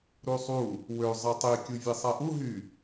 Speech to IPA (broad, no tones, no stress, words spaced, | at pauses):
ɾusˤu | wø zˤɑtˤi kʲuvʲesˤæʔu ɦy